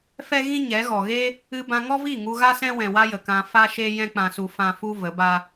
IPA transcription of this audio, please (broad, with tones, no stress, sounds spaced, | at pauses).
f ɛ˦ ɣ ĩ˦ ɲ ɛ˨˦ ɣ ɔ˨ ɣ e˦ | ɨ˧ b ã˧ ŋ ɔ˦ v i˦˨ ŋ u˧ ɣ a˦ s ɛ̃˦ w ɛ̃˨ w a˧ j ə˨ k ã˧ f a˦ ʃ e˦ j ɛ̃˦ k͡p ã˧ s u˧ f ã˦ f u˦ v ə˨˦ b a˦